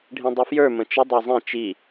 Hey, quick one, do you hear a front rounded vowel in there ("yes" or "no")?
yes